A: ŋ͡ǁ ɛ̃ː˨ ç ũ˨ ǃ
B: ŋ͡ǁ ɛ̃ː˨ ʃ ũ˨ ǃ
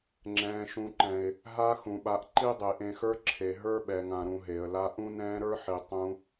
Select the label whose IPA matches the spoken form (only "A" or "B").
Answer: B